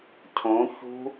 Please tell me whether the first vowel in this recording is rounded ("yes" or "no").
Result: yes